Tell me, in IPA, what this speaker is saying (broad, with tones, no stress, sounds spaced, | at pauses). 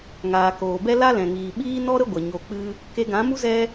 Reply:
ŋ aː˨ k oː˨ b ɛ˦ l a˦ l ɛ̃˨ ŋ iː˨ ɓ iː˦ n ɔ˦ ɾ ə˦ ɡʷ ə˨ ɲ o˧ k͡p ɨ˦ | k e˧ ɡ ã˨˦ m u˦ z ɛ˦